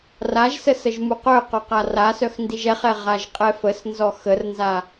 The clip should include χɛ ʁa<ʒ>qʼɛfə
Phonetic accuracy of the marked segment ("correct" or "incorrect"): correct